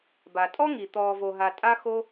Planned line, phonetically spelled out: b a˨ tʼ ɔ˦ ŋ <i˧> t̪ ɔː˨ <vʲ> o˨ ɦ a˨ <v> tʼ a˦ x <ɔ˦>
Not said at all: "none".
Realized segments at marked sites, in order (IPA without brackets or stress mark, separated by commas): i˨, v, none, o˦